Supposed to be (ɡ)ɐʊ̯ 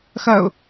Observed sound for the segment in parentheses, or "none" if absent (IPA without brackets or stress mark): x